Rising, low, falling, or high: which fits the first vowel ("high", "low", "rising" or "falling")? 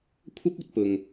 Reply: high